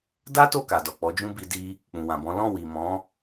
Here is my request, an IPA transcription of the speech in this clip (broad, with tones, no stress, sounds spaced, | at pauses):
d a˦ t o˦˨ k a˨ d ɔ˨ k͡p ɔ˨˦ d͡ʒ ũ˦ b i˧ d i˧ | k͡p ũ˨ w ã˨ b ɔ̃˨˦ l ɔ̃˦˨ w i˨ m ɔ̃˨˦